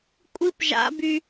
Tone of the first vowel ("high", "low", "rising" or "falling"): high